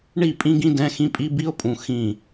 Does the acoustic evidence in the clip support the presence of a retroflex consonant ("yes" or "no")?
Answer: yes